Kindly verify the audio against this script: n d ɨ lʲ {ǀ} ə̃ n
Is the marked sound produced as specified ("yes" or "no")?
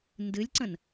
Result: yes